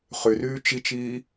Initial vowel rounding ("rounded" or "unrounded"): rounded